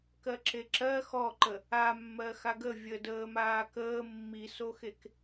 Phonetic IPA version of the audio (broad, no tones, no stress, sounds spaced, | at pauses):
k ɜ ǁ e ǁ ɜ x ɔ ǃ ə | a mː ɜ x a ɡ ə vʲ ə d əː m aː k əː mː i s o x e k